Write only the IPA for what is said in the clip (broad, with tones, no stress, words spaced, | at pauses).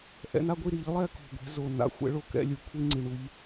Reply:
ʔɛ̰˨˦na˦ɡʷi˥˨ ɾi˧˩˧ʎlˠɛ˥˨ko̤˨˩ ɡʷɛ̤˨˦zo˨˩ na̰˧˩˧ xʷɛ̰˦ɭo˥˨kɛ̰˥˨ lʲɯ˨˩kʷʰi˦ŋ͡ǀi˨˩ɳu˨˦ʎ